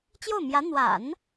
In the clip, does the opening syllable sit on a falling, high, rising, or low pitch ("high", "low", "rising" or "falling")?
falling